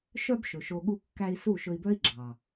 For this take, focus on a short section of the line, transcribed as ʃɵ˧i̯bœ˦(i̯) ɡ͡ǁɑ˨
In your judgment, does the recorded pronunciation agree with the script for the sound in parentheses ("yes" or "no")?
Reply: yes